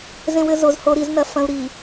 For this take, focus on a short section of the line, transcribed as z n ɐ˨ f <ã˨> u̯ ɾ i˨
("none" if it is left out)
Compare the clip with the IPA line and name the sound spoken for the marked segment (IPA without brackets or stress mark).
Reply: ɐ̃˨